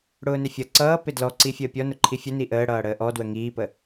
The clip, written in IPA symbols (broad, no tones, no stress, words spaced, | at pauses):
ɽʊːnɪfʲʌ ǀʌː pɪdlɔǀi fʲəːpʲɔnʊ ǃʰifʲʊ niʔəː ɽʌːɽəːʔɔ dwəŋiːpə